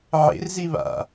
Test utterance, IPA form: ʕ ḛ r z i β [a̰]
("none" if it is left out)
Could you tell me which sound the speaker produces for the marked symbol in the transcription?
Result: a̰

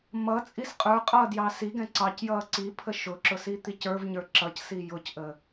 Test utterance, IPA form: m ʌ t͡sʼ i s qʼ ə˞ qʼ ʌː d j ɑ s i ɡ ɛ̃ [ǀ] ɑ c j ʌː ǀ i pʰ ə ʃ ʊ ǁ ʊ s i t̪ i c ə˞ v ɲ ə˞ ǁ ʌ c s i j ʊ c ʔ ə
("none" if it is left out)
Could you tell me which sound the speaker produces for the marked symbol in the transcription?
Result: ǀ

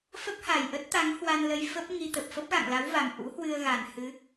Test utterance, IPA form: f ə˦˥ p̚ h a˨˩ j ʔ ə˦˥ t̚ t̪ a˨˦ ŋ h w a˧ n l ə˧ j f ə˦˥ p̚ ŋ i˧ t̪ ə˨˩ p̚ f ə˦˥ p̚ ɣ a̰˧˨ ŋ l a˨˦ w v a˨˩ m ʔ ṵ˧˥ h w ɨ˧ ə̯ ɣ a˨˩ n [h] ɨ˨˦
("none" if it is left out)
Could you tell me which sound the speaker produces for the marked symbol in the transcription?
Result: h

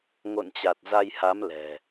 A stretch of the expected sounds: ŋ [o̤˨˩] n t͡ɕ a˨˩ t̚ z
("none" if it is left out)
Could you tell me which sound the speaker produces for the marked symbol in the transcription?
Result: o̰˧˨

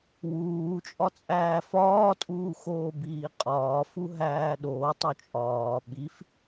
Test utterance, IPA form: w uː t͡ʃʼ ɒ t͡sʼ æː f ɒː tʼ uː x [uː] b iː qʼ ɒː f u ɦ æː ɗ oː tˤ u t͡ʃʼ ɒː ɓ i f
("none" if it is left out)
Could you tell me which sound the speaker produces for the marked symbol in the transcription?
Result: oː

